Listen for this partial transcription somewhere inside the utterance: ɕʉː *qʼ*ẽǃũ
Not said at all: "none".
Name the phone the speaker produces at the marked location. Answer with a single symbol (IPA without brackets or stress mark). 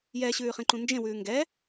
χ